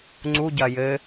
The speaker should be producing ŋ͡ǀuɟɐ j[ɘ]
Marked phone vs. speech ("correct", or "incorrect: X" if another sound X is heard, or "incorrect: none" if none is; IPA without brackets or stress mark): correct